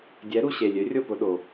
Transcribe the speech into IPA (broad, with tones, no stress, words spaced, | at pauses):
dʲɛ˩˥ɾu˩ ɕe˩lʲø˩˥rʲo˥˩ pʊ˧ɗo˩